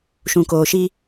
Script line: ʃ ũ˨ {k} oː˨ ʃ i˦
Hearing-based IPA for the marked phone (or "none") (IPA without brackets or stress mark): k